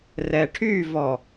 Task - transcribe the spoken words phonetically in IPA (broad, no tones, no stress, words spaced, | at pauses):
rɛʈʰyvɔ